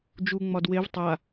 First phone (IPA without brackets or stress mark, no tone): d͡ʒ